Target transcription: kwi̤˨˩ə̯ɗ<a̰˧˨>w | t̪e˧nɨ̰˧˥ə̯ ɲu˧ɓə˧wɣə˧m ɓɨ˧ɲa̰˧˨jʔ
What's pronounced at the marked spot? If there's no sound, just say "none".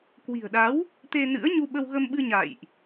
a˨˦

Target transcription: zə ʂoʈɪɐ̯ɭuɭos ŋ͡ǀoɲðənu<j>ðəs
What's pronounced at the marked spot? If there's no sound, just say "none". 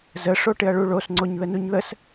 ɲ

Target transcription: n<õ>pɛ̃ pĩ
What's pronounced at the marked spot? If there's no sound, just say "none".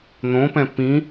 õ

